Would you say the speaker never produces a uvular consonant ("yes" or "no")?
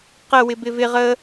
no